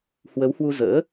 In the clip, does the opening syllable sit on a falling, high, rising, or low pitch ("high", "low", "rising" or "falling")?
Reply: rising